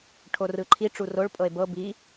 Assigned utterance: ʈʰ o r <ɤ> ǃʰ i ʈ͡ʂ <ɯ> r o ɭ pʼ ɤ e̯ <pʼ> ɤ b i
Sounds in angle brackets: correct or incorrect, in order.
incorrect, incorrect, incorrect

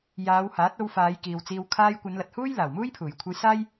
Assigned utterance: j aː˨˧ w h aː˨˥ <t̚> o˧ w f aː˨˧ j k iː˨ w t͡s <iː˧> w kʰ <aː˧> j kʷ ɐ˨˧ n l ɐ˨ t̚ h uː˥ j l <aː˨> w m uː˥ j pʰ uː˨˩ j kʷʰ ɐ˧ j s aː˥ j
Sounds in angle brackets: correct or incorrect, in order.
correct, correct, correct, incorrect

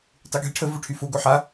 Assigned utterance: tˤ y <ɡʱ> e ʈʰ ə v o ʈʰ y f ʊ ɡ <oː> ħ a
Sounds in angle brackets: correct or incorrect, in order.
correct, incorrect

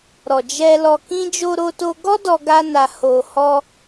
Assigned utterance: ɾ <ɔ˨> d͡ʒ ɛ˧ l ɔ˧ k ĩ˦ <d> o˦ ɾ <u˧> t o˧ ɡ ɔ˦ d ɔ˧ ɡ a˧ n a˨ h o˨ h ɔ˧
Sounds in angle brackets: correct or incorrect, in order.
correct, incorrect, incorrect

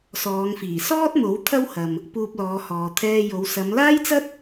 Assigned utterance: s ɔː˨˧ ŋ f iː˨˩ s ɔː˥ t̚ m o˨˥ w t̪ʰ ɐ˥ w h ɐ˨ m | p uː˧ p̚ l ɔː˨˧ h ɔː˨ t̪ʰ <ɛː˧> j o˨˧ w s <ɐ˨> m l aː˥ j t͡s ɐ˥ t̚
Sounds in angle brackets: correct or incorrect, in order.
correct, incorrect

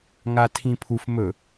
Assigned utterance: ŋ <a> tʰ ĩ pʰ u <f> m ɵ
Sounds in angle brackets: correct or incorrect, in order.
correct, correct

